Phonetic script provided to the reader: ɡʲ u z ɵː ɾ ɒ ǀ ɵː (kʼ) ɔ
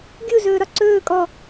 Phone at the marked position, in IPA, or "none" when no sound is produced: kʼ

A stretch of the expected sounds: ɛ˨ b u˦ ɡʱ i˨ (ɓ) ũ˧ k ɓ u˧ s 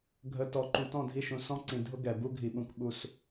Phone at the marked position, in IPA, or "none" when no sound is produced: ɓ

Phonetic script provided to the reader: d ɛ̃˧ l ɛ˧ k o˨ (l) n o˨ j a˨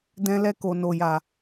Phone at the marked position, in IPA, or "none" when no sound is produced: none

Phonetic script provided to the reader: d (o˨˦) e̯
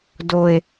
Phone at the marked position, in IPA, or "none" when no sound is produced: o˨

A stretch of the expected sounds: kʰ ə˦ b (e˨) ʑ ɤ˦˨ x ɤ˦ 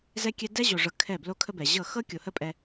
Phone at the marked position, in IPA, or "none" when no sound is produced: ɛ˨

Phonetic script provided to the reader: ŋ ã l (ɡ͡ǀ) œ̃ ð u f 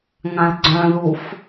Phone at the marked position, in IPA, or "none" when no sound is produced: ɡ͡ǀ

